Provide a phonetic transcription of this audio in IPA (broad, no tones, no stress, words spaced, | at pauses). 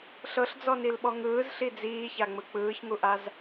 ɬɤɬd͡zɔnilɓɔ ŋɯːzɬi d͡ziːçaŋ͡mɯ k͡pɯːçŋuʔaz